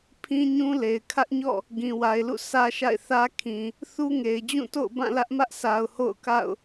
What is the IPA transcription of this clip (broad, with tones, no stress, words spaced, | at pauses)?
pʰĩ˦ɲũ˦le˨ɪ̯ kʰä˦ʔɲɔ̰˦˨ | ɡĩ˨wa˨ɪ̯lṵ˦˨ sʰä˦ʃa̰˦˨ɪ̯ θä˦ kʰĩ˨ | θu˦ŋe˨ɪ̯d͡ʑũ˦˨to̰˦˨ʊ̯ bã˦˨lä˦ʔmä˦ʔsʰa˨ʊ̯ ho̰˦˨ʊ̯ka̰˦˨ʊ̯